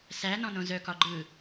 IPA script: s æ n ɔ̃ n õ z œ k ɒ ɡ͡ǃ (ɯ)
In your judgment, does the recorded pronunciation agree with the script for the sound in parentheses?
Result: yes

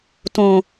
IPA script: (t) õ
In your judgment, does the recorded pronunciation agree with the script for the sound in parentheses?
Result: yes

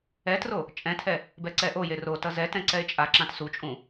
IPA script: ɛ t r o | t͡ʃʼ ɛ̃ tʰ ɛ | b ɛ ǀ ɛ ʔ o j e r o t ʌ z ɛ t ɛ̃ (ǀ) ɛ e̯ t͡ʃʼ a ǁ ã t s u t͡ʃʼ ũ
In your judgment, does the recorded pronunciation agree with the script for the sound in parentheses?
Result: yes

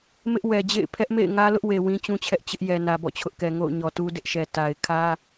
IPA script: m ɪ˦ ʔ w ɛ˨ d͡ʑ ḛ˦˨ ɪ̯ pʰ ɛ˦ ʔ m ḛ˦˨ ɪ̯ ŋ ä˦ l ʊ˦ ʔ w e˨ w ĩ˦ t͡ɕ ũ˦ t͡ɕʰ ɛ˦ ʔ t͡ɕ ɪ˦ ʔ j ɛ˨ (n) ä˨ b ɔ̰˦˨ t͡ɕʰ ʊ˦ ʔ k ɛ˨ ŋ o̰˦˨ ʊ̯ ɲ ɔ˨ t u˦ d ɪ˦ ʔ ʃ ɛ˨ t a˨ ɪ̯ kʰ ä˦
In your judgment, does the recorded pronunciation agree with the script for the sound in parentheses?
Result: yes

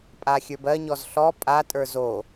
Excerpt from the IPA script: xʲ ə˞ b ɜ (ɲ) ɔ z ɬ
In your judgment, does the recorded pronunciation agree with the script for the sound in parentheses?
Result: yes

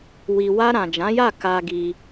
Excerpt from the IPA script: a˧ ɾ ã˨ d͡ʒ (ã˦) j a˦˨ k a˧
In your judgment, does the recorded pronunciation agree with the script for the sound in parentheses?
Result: no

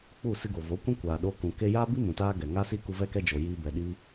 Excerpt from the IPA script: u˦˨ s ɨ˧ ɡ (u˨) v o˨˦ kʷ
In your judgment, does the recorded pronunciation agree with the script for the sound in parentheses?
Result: no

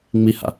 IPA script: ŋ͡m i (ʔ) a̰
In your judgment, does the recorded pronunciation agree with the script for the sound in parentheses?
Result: no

